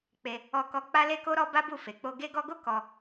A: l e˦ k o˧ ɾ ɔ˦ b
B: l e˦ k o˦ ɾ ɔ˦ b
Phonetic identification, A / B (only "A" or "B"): B